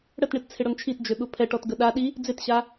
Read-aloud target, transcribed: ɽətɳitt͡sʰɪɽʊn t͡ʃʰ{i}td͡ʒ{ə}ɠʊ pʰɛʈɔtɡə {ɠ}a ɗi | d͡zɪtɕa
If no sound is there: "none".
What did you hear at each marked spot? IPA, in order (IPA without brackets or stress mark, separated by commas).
i, ø, ɗ